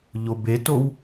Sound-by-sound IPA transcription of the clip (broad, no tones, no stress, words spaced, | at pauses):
ʎobetow